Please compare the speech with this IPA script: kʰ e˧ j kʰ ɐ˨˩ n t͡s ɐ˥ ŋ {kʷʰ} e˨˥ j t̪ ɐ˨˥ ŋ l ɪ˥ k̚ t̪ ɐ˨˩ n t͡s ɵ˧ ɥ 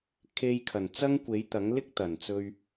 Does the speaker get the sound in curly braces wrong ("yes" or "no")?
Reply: yes